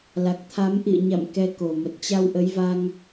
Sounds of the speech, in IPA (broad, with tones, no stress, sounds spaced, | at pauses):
l a˨˩ k̚ t̪ʰ a˨˦ m ʔ ḭ˧˨ ə̯ ɲ a̰˧˨ m k ɛ˨˦ k o˨˩ m ə˨˩ t̚ t͡ɕ a˧ w ʔ ə˨˦ j v a˧ ŋ